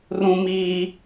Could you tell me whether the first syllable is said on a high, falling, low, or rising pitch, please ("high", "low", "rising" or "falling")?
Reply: high